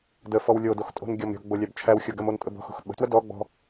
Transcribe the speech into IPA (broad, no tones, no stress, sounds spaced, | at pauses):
d ə f ɔ w lʲ o d o x tʼ o̤ n ɡʲ ɔ m ɾʲ ɔ̤ ɡ͡b o lʲ æ b t͡ʃʰ æ w xʲ o ɡ ə m o n tʼ ə b ɔ̤ x o̤ x ɓ ə̤ t w ə d ɔ ɡ͡b ɔ̤